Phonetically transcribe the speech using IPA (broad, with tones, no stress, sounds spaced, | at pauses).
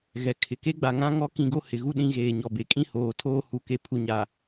ɣ ɛ˨ kʰ ɪ˨ k e˦ ɡ͡b a˨ ŋ ã˦ ŋ ɔ˦ k ĩ˦˨ ɡ o˦ h ɪ˨ ɣ u˦ ɗ ĩ˦ ɣ eː˨ ɲ ɔ˨ b e˨ kʼ ĩ˦ h oː˨ tʰ oː˦ h u˨ k e˨ pʰ u˨ ɲ a˨